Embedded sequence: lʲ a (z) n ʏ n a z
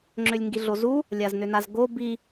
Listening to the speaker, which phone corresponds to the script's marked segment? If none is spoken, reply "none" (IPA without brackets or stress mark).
z